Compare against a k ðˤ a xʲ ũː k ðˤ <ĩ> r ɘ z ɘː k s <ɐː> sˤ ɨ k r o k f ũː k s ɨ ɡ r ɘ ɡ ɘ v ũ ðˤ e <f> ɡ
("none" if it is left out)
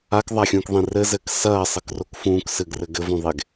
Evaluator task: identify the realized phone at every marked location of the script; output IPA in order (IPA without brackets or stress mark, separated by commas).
ĩ, ɐː, none